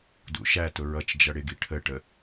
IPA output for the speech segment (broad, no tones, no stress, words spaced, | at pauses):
dṵʃætʊ ɹʌt͡ʃd͡ʒʌ ɽɪɡi ʈʰəʈə